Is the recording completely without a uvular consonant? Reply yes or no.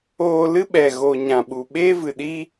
yes